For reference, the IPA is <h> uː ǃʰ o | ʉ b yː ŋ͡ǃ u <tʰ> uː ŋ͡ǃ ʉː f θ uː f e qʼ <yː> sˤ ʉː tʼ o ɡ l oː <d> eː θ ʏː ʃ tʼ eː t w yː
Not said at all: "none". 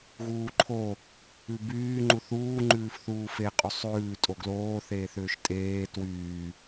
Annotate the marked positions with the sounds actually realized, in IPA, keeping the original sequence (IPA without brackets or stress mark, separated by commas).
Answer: ɣ, θ, y, θ